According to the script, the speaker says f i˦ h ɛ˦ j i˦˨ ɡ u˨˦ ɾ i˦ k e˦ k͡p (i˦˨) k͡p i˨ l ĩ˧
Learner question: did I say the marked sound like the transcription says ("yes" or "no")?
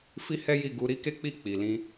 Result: yes